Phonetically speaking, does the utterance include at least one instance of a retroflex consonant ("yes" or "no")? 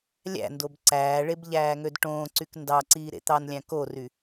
yes